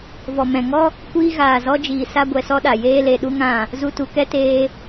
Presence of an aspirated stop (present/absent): absent